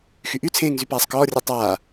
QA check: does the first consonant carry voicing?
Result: no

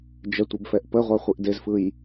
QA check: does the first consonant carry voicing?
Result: yes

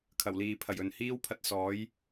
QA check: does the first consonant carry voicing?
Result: no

